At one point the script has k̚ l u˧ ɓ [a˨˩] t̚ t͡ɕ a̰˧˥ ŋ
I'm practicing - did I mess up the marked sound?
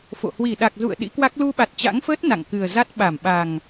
no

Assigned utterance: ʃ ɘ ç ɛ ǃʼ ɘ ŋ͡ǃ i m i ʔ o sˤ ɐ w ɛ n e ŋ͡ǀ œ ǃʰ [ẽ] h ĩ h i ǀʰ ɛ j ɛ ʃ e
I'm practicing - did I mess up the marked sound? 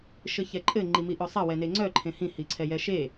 no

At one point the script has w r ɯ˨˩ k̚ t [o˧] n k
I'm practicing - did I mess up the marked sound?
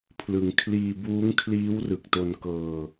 no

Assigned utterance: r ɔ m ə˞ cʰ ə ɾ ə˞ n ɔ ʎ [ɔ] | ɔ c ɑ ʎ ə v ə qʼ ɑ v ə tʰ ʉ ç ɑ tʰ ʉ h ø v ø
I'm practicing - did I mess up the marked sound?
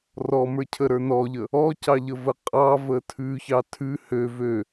yes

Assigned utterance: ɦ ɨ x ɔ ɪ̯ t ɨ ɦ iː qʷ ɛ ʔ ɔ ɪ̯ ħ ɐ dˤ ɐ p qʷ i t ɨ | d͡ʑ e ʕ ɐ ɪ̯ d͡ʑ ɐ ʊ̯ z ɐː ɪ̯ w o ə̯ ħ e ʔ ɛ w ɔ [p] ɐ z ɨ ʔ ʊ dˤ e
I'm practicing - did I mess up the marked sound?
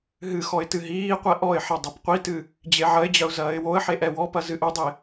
no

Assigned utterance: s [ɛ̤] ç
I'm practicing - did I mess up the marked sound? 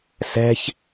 no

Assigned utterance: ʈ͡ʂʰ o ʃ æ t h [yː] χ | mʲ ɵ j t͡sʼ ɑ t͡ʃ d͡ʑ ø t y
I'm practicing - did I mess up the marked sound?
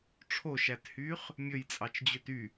no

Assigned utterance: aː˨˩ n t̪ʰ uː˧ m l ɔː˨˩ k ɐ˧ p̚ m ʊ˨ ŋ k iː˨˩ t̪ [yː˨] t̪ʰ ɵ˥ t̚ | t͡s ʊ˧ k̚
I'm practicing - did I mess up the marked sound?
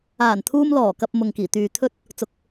no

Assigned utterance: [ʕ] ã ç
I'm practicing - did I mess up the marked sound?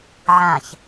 no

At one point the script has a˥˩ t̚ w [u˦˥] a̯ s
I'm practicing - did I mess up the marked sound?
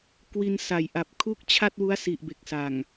no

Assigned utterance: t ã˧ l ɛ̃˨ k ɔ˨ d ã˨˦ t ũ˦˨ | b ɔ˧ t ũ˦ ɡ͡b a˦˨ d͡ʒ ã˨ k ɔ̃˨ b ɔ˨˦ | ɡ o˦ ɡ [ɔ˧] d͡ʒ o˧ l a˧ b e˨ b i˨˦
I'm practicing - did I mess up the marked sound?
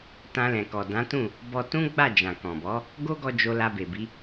no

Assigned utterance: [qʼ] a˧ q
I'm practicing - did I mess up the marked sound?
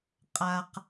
no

